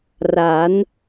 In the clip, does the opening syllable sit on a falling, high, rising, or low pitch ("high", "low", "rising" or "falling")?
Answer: rising